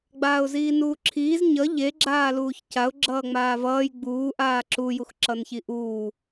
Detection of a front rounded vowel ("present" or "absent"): absent